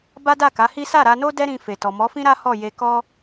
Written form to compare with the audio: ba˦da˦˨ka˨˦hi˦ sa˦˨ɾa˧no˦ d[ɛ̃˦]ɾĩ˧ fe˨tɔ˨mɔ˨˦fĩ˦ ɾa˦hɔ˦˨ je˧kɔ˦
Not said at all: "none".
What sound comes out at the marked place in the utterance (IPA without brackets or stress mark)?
ɛ˦